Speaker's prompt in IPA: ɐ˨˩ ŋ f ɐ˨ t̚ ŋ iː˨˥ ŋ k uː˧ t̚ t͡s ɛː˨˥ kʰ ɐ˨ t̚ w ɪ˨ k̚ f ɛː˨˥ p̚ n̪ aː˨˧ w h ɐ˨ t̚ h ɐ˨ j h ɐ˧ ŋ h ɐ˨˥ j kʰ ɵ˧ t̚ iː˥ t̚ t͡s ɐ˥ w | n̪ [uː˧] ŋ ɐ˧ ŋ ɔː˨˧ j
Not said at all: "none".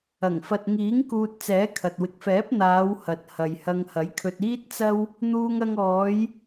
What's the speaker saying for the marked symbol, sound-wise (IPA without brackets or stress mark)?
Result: uː˧